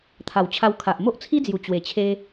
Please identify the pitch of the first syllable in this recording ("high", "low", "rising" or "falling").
low